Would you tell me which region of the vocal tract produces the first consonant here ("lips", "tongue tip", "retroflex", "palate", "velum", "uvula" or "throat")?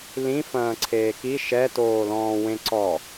tongue tip